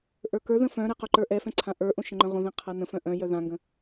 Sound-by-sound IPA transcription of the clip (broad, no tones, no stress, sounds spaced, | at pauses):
ʔ ə˞ k ə˞ ð ə̃ f œ̃ ɾ ɛ q œ ǃ ə˞ ʔ ɛ f ɛ̃ ǀʰ ã ʔ ə˞ ʔ õ ʃ ə̃ ŋ͡ǃ œ̃ ʁ õ ð ɛ̃ qʰ a n ə̃ f œ̃ ʔ œ̃ j œ ð ã ŋ ɡ ə̃